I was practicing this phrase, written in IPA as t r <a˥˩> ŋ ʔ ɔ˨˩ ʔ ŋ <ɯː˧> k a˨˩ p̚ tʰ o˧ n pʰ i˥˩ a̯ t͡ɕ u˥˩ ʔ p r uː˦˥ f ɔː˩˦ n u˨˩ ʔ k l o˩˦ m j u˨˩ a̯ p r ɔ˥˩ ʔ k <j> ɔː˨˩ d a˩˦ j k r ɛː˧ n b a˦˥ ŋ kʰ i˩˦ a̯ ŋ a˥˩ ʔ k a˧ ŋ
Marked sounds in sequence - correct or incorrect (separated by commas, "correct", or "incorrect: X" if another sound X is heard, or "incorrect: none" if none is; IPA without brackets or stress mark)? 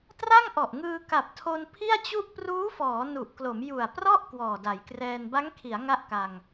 correct, correct, incorrect: w